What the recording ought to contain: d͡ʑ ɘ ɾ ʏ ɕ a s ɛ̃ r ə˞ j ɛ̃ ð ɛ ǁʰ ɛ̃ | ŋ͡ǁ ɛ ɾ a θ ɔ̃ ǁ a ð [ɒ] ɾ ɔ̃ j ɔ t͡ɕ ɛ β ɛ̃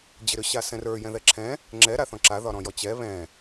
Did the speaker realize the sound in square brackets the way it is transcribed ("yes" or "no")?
yes